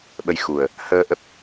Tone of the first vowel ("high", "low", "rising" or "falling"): rising